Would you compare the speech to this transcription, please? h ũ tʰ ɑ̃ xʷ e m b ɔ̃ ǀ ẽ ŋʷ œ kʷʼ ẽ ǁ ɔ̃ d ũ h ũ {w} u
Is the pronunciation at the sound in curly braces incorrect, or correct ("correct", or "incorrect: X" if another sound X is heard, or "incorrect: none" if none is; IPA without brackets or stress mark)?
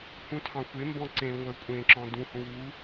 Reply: correct